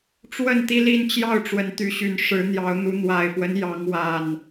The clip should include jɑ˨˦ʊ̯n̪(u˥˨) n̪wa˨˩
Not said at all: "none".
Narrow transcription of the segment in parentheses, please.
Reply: u˨˦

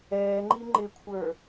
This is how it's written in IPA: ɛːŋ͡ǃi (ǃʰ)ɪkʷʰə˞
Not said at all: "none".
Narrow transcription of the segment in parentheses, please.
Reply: ŋ͡ǃ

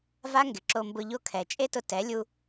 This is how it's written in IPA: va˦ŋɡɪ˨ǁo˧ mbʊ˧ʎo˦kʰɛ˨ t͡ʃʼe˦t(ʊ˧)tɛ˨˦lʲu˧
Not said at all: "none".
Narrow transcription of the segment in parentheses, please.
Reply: ʊ˧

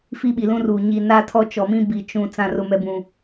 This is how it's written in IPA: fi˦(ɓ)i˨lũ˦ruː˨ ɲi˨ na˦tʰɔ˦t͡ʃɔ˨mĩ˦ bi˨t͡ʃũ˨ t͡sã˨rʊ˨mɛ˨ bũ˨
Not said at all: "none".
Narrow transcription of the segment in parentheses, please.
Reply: ɓ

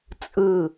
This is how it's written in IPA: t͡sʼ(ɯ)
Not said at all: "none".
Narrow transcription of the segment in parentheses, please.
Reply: ɯ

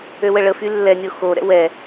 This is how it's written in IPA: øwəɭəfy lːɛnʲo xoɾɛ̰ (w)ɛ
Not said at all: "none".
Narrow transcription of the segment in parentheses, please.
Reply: w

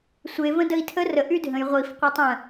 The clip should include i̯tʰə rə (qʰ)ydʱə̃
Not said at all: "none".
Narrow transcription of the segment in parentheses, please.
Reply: ʔ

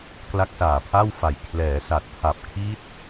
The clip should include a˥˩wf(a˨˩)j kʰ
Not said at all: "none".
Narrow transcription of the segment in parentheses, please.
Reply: a˨˩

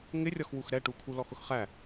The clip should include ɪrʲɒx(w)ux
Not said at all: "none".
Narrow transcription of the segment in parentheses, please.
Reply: w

